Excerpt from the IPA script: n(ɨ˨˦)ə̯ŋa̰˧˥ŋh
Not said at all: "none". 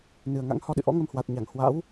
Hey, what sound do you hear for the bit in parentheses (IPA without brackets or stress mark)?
ɨ˨˩